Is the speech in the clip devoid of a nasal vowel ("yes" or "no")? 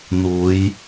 yes